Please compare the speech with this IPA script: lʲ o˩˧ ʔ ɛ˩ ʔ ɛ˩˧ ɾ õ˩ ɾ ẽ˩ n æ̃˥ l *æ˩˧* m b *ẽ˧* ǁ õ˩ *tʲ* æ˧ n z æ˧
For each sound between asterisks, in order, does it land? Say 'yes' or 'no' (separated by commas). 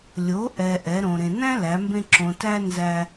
yes, yes, no